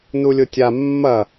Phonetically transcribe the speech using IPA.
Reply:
n u lʲ ʊ tʲ a mː ɐ

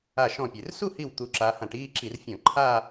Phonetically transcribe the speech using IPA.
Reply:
a˧˩ ʃ ɔ̃˧˩ pʲ e˩ r s u˥˧ h i˧˩ w t̪ u˨˦ ǁ a˨˦ h ã˧˩˧ ʈ iː˥˧ ǁ i˧˩˧ r fʲ ɔ̃˧˩˧ ǃʰ a˥˧

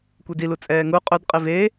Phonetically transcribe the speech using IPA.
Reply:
kʷ e d i l u t͡sʼ ɛː ŋ u qʼ ɵ d qʼ i v e

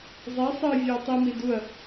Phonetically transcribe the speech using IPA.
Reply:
zˤ e sˤ ɨ vʲ e ɐ̯ tˤ i m i d u ɐ̯

